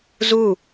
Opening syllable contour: falling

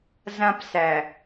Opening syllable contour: high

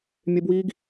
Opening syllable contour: high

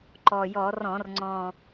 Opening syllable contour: low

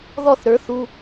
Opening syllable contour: falling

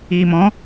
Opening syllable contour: low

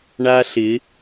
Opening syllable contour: high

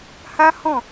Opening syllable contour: high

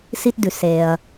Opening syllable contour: high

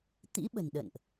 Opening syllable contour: rising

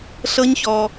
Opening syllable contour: high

